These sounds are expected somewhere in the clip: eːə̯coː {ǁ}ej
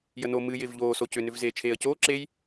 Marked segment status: correct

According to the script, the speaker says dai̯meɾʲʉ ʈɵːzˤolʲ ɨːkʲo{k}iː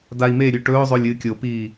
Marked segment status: incorrect: p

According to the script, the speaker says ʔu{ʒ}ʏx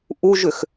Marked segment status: correct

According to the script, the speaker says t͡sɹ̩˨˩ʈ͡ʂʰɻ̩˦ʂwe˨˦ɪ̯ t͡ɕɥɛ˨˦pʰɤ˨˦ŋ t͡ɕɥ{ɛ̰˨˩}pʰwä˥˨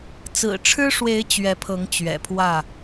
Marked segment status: correct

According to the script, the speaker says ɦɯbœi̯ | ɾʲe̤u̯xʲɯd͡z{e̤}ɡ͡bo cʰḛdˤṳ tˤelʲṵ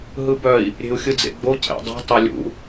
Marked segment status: incorrect: ḛ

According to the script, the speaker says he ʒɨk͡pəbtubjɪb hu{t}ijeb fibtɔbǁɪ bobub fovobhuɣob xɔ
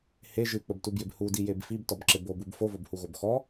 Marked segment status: incorrect: d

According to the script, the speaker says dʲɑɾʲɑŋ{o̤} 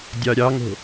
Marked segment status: correct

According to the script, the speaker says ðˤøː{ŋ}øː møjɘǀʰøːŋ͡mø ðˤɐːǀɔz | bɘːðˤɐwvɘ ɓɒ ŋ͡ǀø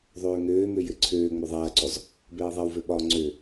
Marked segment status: correct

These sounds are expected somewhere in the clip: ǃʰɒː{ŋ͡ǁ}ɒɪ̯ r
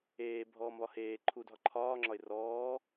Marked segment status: correct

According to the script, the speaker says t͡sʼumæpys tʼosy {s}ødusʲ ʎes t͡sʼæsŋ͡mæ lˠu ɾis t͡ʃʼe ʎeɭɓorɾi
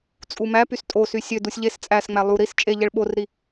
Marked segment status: incorrect: sʲ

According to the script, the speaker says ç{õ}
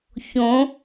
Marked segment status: correct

